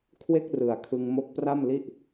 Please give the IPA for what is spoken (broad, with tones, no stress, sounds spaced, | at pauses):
kʰ w e˥˩ k̚ r ɯ˨˩ a̯ kʰ ɯ˧ ŋ m o˦˥ k̚ p r a˥˩ m l i˥˩ ʔ